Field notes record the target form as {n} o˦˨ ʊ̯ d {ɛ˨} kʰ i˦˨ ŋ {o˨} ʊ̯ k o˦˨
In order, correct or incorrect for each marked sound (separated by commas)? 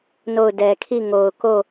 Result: correct, correct, correct